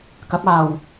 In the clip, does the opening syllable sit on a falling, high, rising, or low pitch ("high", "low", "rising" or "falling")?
rising